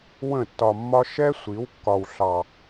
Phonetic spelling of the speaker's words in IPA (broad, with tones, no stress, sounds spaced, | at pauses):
w ə̃˦˨ tː ɒ˧ mː ɒ˦ ʃ ɛ˦ sʷ i˨˦ w kː ɒ˧ w ɬ ɑ˧